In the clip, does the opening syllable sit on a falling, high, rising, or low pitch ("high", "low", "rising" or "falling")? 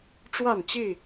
falling